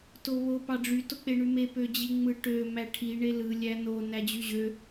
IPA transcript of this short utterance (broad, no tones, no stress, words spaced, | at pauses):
toβo pɑɖ͡ʐy tok͡peɳyme pød͡ʑiŋ͡mɯ ʈø mæʈʰi ɳelɯ lʲæno næd͡ʑyʑø